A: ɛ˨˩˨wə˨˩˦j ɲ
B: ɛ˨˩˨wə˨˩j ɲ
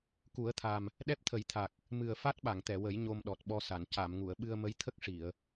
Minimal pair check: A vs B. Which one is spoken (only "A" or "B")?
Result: A